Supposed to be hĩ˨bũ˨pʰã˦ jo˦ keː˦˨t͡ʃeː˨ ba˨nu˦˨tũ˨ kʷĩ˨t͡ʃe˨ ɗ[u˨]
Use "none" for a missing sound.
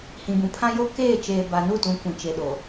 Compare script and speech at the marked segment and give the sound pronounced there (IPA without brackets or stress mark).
o˨